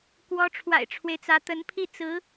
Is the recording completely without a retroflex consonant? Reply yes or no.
no